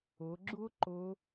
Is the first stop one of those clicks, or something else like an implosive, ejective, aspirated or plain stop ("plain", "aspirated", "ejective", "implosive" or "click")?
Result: click